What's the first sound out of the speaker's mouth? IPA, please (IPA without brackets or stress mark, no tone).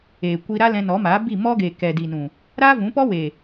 eː